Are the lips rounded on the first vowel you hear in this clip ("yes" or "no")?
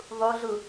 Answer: yes